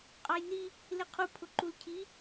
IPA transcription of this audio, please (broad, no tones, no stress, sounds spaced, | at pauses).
qʼ ɑ j n i | l ɪ qʰ u pʰ ʊ ǃ u l cʰ i